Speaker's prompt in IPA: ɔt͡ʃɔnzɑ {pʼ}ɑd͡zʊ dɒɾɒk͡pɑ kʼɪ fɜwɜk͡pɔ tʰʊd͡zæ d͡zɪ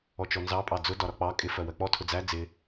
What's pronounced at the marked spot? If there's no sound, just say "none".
pʼ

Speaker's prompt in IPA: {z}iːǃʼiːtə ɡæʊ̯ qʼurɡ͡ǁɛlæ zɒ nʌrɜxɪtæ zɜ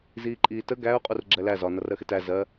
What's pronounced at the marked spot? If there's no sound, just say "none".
z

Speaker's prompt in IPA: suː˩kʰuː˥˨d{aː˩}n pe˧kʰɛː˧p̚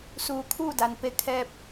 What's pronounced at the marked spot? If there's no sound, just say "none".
a˩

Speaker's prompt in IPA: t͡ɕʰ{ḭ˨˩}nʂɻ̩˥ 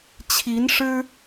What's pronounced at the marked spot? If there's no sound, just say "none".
i˧˥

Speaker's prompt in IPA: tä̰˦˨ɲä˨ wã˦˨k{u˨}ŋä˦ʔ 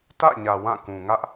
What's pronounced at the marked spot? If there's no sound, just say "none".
ũ˨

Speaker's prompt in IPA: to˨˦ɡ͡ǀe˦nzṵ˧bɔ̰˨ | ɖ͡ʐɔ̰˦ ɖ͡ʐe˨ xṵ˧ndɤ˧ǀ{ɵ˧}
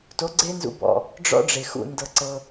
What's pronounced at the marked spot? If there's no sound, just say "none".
ɤ˧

